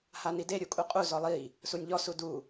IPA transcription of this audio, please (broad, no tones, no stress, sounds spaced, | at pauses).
h a n i d e ɾʲ u kʼ u qʼ u z ɔ lˠ i | s u nʲ ʎ ɔ s u d u